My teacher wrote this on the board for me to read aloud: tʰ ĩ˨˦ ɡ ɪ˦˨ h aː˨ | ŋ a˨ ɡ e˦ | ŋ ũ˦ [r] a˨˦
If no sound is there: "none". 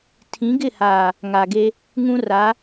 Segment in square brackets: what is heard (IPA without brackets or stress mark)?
r